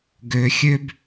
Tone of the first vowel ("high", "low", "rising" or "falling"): low